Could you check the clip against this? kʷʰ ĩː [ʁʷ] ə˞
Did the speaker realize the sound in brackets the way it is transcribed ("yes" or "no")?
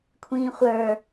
no